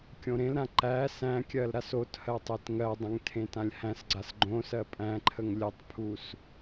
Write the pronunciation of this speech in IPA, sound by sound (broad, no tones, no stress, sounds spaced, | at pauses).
kʲ õ ɾ ẽ l ɾ ã ǃ æ s æ̃ kʲ ɜ l ɾ a s o t h ɜ tˤ e t ŋ ɜ dˤ ə̃ ŋ tʰ ẽ t ã lʲ h æ̃ s ɡ͡ǀ a s ɡ͡ǃ õ s ɜ pʼ æ̃ ǃʰ ə ŋ lʲ ə tˤ pʰ u s